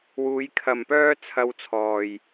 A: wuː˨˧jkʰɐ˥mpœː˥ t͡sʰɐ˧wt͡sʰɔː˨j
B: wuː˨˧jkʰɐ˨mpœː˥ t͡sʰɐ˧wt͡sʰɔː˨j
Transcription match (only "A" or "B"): B